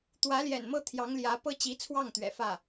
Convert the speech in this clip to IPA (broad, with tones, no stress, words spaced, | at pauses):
t̪wä˧˥ljɛ̰˨˩nmɤ˥˩ t̪ʰjɑ˧˥ŋljä˧˥ pɤ˥t͡ɕi˧˥t͡sʰwɑ˥˩ŋ t̪ɥɛ̰˨˩fä˥˩